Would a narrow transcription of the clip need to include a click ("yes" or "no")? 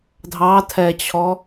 no